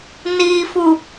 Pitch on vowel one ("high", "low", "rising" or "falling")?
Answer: low